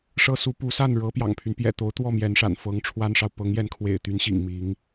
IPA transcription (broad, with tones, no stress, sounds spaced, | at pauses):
ʂ ɤ˥ s u˧˥ p u˧˥ s a˥˩ n ɻ ɤ˧˥ p j ɑ̰˨˩ ŋ pʰ y˦ n p j ɛ̰˨˩ t̪ o˧˥ ʊ̯ t̪ w ɔ˥˩ m j ɛ˧˥ n ʂ a̰˨˩ n f ɤ˧˥ ŋ ʈ͡ʂʰ w a˥ n ʂ ɑ˨ ʊ̯ p ɤ˧˥ ŋ j ɛ˧˥ n kʰ w ḛ˨˩ ɪ̯ t̪ y˧˥ n ɕ ḭ˨˩ ŋ m i˧˥ ŋ